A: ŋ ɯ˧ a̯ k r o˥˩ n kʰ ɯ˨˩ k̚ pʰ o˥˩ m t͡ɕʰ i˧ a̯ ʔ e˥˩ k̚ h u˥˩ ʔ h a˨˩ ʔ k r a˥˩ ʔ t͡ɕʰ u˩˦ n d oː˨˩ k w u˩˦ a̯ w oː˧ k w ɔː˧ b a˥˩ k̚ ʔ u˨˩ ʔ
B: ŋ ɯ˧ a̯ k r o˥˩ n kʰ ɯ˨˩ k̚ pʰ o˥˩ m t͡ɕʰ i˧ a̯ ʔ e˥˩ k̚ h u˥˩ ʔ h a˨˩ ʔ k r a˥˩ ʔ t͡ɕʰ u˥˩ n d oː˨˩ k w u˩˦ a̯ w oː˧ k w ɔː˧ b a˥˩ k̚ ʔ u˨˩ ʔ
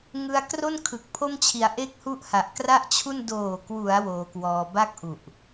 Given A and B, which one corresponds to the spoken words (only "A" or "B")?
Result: B